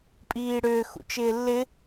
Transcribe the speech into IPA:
pʼiːɽʏː xṵt͡ʃɪːlːɪ

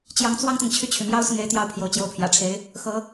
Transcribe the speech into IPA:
t͡ɕjɑ˧˥ŋt͡swɑ˥ŋt̪ɤ˨ŋ t͡ɕʰy˥˩t͡ɕʰy˩mjɑ˥ʊ̯ sʊ˥˩ŋe˥ɪ̯t̪jɑ˥˩ʊ̯pʰjo˧˥ʊ̯ t͡ɕjo˧˥ʊ̯pʰjä̰˨˩ʈ͡ʂʰe˧˥ɪ̯ | xɤ˧˥

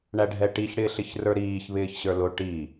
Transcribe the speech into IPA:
ɳæɖʱɛʈiç ɽɪːɬɪçrə˞ɾiːç βɪːçɕə˞lʊ ʈi

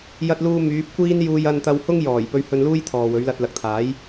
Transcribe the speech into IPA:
jɐ˧t̚luː˧ myː˨˥p̚kʷiː˥n juː˧jɐ˧nt̪ɐ˧whʊ˥ŋ jɔː˨˩j pɵ˧ɥhɵ˧nluː˥j t̪ʰɔː˨wɵ˨˥ɥlɐ˧t̚ lɐ˨k̚t̪ʰaː˨˥j

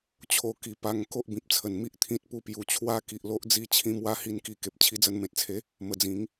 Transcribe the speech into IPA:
t͡ɕʰo˧ki˨˩pa˧ŋ ko˦ʔbĩ˨p̚t͡sʰə˨˩n mi˦ʔt̪ʰĩ˦t̚pu˦ pju˨˩t͡ɕʰwa˦ki˨ʔlo˦ʔ d͡zi˧t͡ɕʰĩ˧mwa˧ hi˧nki˧ ke˨p̚t͡ɕʰi˧d͡zə˧n mẽ˨t̚t͡sʰe˨˦ | mə˨˩ d͡zĩ˨˦ŋ

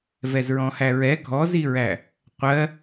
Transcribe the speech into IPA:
vɛzɹɔ̃hæɹɛ ɡʱɔziɹæ | qʷɜ

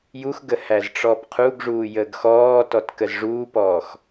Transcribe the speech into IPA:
juxɡə hæzʈ͡ʂɔːpqʰuɡʐuː jəːɡxɔːtɔt kəzʐuːpɔːx

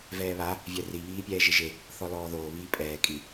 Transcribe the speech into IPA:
vɛːβa | vʲɛri βiːpʲɛːʒɪʒe | θɔlɔːðoː βiːpʼɛː kʼi

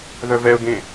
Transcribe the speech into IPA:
ðœvɛʊ̯ɡẽ

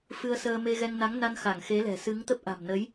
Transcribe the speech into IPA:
fɨ˧ə̯səː˧me˧ɣɛ˧ŋ na˨˦ŋna˧nxa˧˩ŋ xe˨˦lɛ̤˨˩ sɨ˨˦ŋt̪ə˦˥p̚ ʔa̤˨˩mnə˨˦j

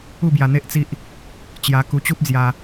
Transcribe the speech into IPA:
u˥˧bja˧n̪e˦ʔt͡si˦ʔ | t͡ɕja˧ku˧ t͡ɕu˦p̚d͡zja˧

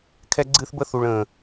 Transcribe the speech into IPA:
kʰɛ˧ɡ͡ǀɨː˧θbə˧θu˨ɭ ə̃ː˨

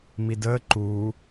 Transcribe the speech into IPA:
midəː ǃu

